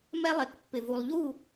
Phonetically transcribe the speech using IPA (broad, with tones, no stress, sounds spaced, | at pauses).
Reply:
m ɛ˦ lˠ e˨ k pː ɪ˨ v u˨ lˠ ʎ u˦˨